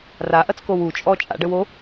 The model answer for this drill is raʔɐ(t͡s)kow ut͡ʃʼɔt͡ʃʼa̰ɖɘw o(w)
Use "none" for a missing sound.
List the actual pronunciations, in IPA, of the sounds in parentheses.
t͡s, none

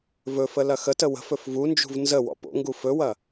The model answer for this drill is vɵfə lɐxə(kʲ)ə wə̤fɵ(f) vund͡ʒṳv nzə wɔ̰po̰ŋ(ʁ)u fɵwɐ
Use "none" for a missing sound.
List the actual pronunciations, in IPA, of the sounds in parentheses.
t, f, ɡ

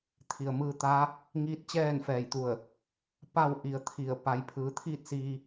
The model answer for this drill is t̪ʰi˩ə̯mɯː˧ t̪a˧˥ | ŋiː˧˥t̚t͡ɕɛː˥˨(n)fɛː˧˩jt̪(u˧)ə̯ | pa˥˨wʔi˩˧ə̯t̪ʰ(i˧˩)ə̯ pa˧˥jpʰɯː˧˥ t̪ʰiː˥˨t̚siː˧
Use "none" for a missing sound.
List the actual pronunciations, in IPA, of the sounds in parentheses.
n, u˧˩, i˧˩

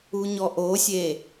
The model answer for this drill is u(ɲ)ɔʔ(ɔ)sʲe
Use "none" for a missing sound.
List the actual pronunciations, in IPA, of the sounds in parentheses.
ɲ, o

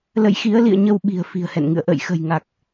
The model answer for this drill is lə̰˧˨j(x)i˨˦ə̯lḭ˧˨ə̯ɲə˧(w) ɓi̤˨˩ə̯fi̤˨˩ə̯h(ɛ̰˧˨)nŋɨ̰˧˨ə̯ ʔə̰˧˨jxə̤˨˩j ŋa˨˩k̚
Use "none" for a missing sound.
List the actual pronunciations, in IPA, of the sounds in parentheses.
x, w, ɛ̰˧˨

